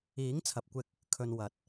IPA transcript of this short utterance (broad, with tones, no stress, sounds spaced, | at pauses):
iː˨˥ ŋ t͡sʰ ɐ˨ p̚ kʷ ɪ˧ k̚ | kʰ ɵ˨ n w ɐ˨˥ t̚